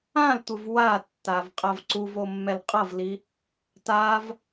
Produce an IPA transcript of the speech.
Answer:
ã l tʷ ɯ v w a tː a v qʼ a v ǀ u v o mː ɛ l qʼ ʌ v l i | t a v

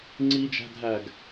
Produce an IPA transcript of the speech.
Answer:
ŋ͡ǀ i d͡ʒ æ̤ dʱ æː ɡ

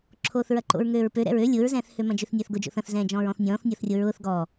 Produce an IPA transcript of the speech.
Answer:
ǁʰ oː θ ɹ ɐ ǃ o̰ ɹ ŋ øː ɹ p ø ɾ ɛ̰ ɹ ø lʲ ʊː ɹ z ɛ̃ː θ h ø m ɐ̃ d͡ʒ ø θ nʲ ɐː θ ɡ ʊ d͡ʒ o̰ θ ɐ̃ θ z ɛ̃ː d͡ʒ ɔ̃ː ɹ ɔ̃ θ nʲ ɔ̃ː θ nʲ ɔ θ rʲ o ɹ ʊː θ ɡ ɔ

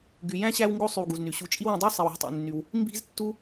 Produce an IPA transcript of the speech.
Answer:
ɡ y˩ j æ̃˥ ɕ æ˦ w ŋ ɡ o˦ sˤ y˨ w ɡ u˩ z n y˩ ɕ u˨ t͡ʃʼ i˦ w ẽ˨ dˤ o˥ sˤ i˨ w æ̤˦ tˤ ḛ˨ nː y˨ w | m b i̤˦ z tː u˥

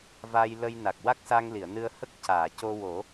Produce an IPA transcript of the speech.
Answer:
v a˧ j l ə˧ j n a˨˩ k̚ w a˦˥ k̚ s a˧ ŋ l i˨˩˨ ə̯ n ɨ˧ ə̯ h ə˦˥ k̚ c aː˨˩˨ c o˧ w o˨˩˦

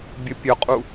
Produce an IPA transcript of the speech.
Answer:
bʲ ʊ pʲ ʊ qʼ u

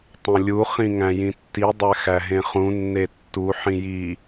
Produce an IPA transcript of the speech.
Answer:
tˤ õ lʲ u χ ĩ ŋ æ̃ j ĩ tː i dˤ æ x æ ɦ ẽ χ ũ nː e tː u ħ ĩ j i

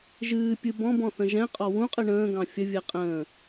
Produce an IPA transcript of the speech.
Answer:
ʒ ɨː pʲ ɨ b ɔ̃ b ɔ̃ θ ə̃ ʒ ɛ̃ qʼ ɔ w ũ qʼ ɨ ɳ ə̃ː ɡ ɑ̃ fʲ ə vʲ ɛ qʼ ə̃ː

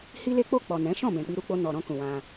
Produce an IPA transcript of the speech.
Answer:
h i˦ l e˦ k͡p o˦˨ k͡p ɔ˨ n ɛ̃˨˦ ʃ ɔ̃˦˨ b ɛ̃˨ k͡p i˧ ɾ u˧ k͡p o˧ n ɔ˨ ɾ ɔ̃˧ k ũ˨ w ã˧

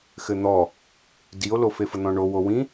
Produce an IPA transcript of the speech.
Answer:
x ɘ n̪ ɔ | d i o̯ l o f e f ə n̪ ɔ̃ ɳ o w o w ĩ

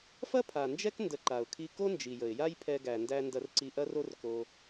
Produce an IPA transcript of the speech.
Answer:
f ɐ˦ pʰ a˨ n d͡ʒ ɛ˦ k n d ə˧ ǃ a˨ ʊ̯ kʰ i˦ k o˦ n d͡ʒ i˨ j ə˨ ɪ̯ j a˦ j pʰ ɛ˧ ɡ æ˨ n d æ˧ n d ɐ˧ r ǀ i˧ ʔ ɐ˦ r o˦ r k o˧

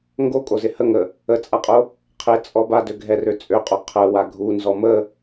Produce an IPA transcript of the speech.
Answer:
ŋ ɡ o kʼ o z ɪ h ə ŋ ə | ə t͡sʼ a qʼ o | qʰ ɪ t͡sʼ ɔ b a d ø ɡʱ ɛ r ø t͡sʼ ø qʼ o qʰ ə w a ɡʱ u n z ɔ m ə

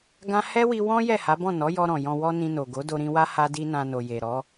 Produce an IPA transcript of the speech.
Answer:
ɡ ã˦ h ɛ˦ w i˧ w ɔ̃˦ j ɛ˦˨ h a˨˦ b ɔ̃˦˨ n ɔ˨˦ j ɔ˧ ɾ ɔ̃˨ j ɔ̃˧ w ɔ˦ n ĩ˧ n o˨ ɡ o˨˦ d o˧ ɾ ĩ˧ w a˦ h a˦ d i˦ n ã˧ n o˨ j e˨ ɾ ɔ˨˦

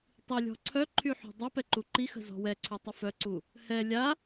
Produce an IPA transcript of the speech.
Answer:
tˤ i lʲ ɔ̤ ǀʰ œ ǃʰ y ħ ṳ dˤ œ p ɛ ǃ u ǃ i x ə̤ z ɔ̤ w ɛ ǀʰ y tˤ ə f œ ǀ u | h ɛ lʲ a

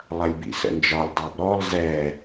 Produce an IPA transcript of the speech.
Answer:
lˠ ɐ lʲ b ḭ s ə̰ n d͡ʒ ɒ lʲ dˤ a b ɾ ɔ lˠ z ɛ

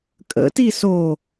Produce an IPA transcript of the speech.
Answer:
kʼ ə̰ t i s o

